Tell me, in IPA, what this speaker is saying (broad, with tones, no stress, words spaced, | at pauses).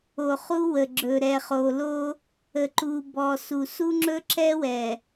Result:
o˨χu˦wə˨ɡ͡ǁɵ˨ ɾɛ˨χo˨lo˦ | ə˨ǃu˨bɔ˨su˨ su˦ŋ͡ǁɵ˦ǁɛ˦ wɛ˨